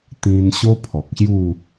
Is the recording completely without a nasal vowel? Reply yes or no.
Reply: no